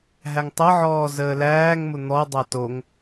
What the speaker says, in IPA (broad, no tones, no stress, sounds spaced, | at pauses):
ɦ æ ŋ tˤ ɤ ʕ ɔː z əː l æː ŋ m ʊ n̪ ɔ dˤ a t o ŋ